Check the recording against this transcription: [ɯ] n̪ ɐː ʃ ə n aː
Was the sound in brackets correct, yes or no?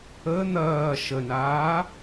no